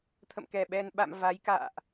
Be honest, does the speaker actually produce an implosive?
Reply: yes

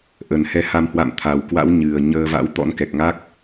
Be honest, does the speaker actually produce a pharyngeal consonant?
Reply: no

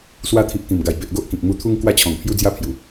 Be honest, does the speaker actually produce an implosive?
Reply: no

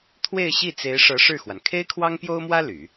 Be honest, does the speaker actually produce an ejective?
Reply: no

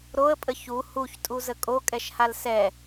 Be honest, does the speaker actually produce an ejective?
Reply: yes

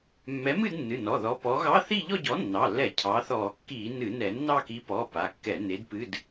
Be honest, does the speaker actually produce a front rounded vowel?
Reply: no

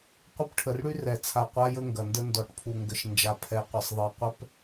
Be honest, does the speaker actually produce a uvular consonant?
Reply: yes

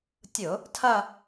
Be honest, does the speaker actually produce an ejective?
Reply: no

